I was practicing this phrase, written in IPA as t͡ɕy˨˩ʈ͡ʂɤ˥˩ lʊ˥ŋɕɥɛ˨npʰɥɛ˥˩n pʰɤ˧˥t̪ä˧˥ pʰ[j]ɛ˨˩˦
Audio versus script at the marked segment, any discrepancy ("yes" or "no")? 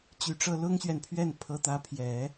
no